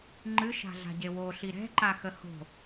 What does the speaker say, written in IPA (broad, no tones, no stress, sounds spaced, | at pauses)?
ŋ͡ǃ ɨ ʃ a̤ ɮ a̤ ɟ e w o ɬ i ɾ ɛ̤ ǃ a x ə h o̤